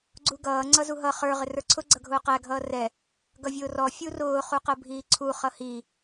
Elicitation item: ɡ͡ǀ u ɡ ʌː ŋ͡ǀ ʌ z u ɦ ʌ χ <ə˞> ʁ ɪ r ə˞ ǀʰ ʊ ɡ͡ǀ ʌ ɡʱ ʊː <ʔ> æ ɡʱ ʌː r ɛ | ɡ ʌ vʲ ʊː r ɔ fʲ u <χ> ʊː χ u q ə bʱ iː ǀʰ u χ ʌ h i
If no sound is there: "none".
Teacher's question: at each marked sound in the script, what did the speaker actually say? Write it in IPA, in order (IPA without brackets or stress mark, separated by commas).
ə˞, q, r